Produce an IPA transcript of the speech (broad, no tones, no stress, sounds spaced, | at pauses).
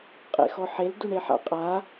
qʼ ḛ x ɔ ħ e l d u ɳ e ħ a̰ qʼ a